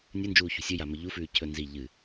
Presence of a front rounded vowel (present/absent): absent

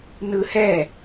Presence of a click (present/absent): absent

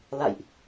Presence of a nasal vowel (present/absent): absent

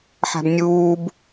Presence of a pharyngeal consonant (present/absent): present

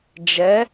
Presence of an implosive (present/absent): absent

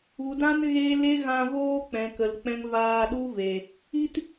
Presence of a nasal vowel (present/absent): present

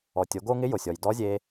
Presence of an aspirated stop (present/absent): absent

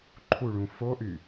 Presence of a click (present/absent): present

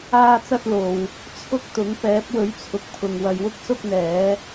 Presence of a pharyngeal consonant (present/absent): absent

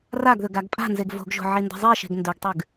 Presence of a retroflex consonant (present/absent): absent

